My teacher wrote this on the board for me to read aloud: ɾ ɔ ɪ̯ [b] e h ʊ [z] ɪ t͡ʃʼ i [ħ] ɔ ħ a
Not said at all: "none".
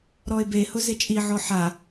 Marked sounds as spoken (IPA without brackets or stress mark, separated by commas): b, z, ʕ